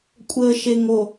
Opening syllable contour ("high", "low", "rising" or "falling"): low